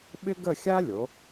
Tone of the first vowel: high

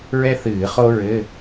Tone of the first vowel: high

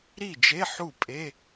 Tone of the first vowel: falling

